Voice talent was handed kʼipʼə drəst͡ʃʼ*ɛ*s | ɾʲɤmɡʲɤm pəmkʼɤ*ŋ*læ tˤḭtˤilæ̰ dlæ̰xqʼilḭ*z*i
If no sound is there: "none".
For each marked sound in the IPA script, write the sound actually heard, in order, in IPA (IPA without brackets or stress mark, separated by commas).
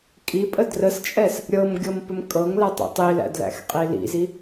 ɛ, ŋ, z